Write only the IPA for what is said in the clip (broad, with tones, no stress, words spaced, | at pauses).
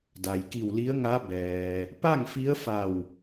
da˩jki˧˩wli˧˥ə̯ŋa˧˥ bɛː˩ | pa˥˨ŋfi˧˥ə̯fa˧˩w